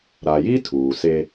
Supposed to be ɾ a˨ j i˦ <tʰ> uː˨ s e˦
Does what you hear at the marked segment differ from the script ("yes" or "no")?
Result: no